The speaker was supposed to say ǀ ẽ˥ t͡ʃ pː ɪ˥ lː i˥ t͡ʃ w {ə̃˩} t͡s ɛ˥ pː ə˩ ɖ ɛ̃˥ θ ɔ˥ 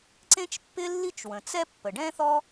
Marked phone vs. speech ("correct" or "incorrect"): correct